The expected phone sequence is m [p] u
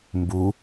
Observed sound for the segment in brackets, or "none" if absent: b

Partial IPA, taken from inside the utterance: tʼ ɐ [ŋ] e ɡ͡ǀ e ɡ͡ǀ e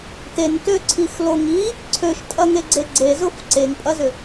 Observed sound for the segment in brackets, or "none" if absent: ŋ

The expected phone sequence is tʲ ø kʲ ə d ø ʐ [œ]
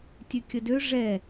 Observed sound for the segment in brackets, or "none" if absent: ɛ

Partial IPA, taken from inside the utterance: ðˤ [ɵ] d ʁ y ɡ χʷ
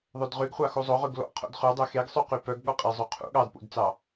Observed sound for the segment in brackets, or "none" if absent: ɵ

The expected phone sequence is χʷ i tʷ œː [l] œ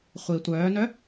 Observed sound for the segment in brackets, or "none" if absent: n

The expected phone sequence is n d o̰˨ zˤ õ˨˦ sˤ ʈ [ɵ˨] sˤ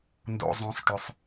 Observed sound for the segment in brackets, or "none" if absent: ɵ˨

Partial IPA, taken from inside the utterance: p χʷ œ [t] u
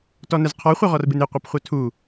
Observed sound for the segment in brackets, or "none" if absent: tʰ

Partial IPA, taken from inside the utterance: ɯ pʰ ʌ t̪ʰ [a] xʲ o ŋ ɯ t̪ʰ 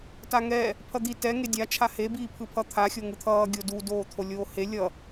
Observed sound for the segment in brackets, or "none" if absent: a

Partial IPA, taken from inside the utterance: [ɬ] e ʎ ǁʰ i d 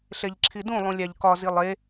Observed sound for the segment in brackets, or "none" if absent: ɬ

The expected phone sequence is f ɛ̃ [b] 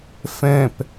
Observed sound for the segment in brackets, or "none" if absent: p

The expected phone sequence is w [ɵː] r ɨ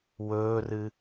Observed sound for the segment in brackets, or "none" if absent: ɵː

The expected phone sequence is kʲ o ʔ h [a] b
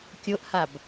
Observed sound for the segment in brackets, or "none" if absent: a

